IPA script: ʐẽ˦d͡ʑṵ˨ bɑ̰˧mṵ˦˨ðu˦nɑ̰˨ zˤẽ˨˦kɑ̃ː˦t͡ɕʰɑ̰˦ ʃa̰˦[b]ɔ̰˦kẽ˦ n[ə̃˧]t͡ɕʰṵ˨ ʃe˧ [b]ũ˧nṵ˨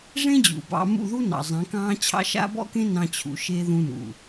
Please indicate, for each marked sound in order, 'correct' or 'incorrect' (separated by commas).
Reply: correct, incorrect, incorrect